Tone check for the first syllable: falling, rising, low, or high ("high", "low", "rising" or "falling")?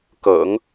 low